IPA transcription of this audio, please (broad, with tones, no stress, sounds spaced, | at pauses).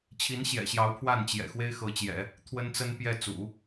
t͡ɕʰ i˧˥ n ɕ j ɛ̰˨˩ ɕ j ɑ˧˥ ʊ̯ pʰ w a˥˩ n t͡ɕ j ɛ̰˨˩ x w e˥ ɪ̯ x ɤ˧˥ t͡ɕ j ɛ̰˨˩˦ | t̪ʰ w ə˥ n t͡s ə˥ n p j ɛ˥˩ t͡s ṵ˨˩˦